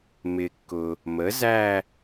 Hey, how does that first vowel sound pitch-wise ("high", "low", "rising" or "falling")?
low